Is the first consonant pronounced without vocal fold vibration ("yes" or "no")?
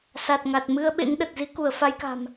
yes